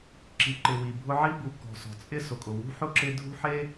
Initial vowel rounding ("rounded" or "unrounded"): unrounded